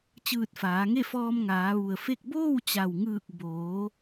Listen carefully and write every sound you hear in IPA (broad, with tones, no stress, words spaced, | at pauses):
t͡ɕɯː˧˩t̚faː˩˧ŋe˥˨fɔː˧m ŋaː˩˧ʋu˩ə̯fe˥˨k̚ boː˥˨wt͡ɕa˩wŋɯː˧˩k̚ boː˩˧